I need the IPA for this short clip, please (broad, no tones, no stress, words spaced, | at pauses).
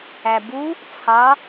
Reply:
æbu | t͡sʰɑ